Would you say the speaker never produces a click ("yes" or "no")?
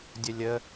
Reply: yes